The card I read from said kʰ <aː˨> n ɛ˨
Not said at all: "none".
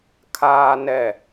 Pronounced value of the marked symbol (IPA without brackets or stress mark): aː˨